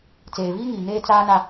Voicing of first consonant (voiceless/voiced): voiceless